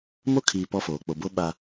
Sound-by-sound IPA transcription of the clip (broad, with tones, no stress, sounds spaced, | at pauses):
m o˦ kʰ iː˨ p ɔ˦ f oː˨ k͡p o˨ b o˦ ɓ a˦